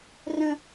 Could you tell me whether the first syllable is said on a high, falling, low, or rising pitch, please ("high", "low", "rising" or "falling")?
high